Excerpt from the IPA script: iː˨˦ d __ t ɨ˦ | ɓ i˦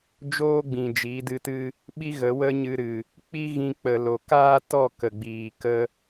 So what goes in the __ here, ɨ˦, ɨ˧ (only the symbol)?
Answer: ɨ˧